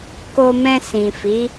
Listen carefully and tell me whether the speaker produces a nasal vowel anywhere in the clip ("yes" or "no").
yes